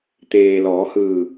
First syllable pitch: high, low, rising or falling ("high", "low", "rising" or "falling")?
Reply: low